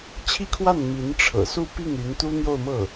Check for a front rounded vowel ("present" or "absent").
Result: present